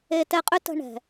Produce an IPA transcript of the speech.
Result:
e˦tɛ˦qʼʏ˥tə̤˦ ɳɛ̤˨

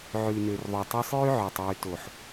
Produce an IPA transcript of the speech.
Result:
ʕʉ˨nø˨rðˤo˨tˤo˧sˤ jʉ˦ʕø˨tˤ jʉ˨to˨ħ

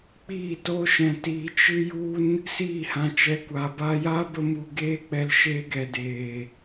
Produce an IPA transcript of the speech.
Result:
k͡piː˦˨to˦ ʃɛ̃˧tiː˧ t͡ʃɨ˦ju˦n | siː˦˨hã˧t͡ʃɛ˧ kʷa˨ba˧ja˦ bə˦mu˧ɡeː˦ k͡pɛ˧lʃeː˧ɡɛ˨ deː˨

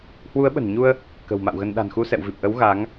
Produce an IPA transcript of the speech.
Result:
hwu˨˦ə̯ɓə̤˨˩nɲu˧ə̯ | kə̤˨˩w ma̰˧˨wɣə˧n ɗa̤˨˩nxu˧sɛ̰˧˨wvi˨˩p̚ ʔə˨˦w ɣa˨˦ŋ

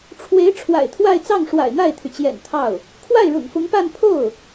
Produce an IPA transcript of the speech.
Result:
ʈ͡ʂʰwe˧˥ɪ̯ ʈ͡ʂʰwa̰˨˩ɪ̯t̪ʰwa˥˧ɪ̯t͡sɑ˥˩ŋ ʂwa̰˨˩ɪ̯n̪a˥˩ɪ̯t̪ʰy˩t͡ɕjɛ̰˨˩n t̪ʰɑ˥˩ʊ̯ | kʰwa˥˩ɪ̯ɻʊ̰˨˩ŋfʊ˧˥ŋpa˥˧n pʰo˥˩ʊ̯

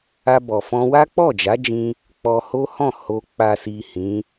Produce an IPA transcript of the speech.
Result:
a˧bɔ˨fɔ̃˧ wa˦k͡pɔ˦˨d͡ʒa˨˦d͡ʒĩ˧ | k͡pɔ˧ho˦hɔ̃˦˨ ho˨k͡pa˨si˨ hĩ˨˦

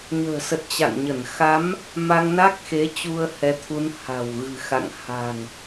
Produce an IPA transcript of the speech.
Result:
ɲə̤ː˨˩sə˨˩t̚ t͡ɕa̰˧˨ŋɲə˧˩n xa˨˦m | ma˧ŋna˦˥k̚xe˨˦ t͡ɕu˧ə̯hɛ˨˦t̪ʰu˨˦n ha̤˨˩wɣɨ̤˨˩xa̰˧˨ŋ ha̤˨˩ŋ

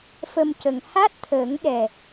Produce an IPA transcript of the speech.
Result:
fə˧mcə˨˩ŋ ha˦˥t̚t̪ʰəː˨˩˦ŋɗɛ˨˩

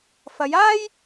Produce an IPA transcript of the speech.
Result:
fɐ˨˧jaː˥j

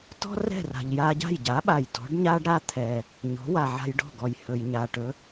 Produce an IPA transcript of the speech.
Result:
tɔ̤˥rɛ̤˥˩r a̤˩ʎja˧ɟa̤˥˩jɟa˩˥ ɓa˩j tɔ̤˩˥ɖɲa˥ɖɾa˥ t̪ʰɛ˩ | ɲɔ̤˩˥wa˩ʕa̤˧j ɖɔ̤˥˩ɡɔ˩j hɵ˩jɲa˩ʈɵ˩˥

